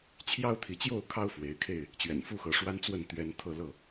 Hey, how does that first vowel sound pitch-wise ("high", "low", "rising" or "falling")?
high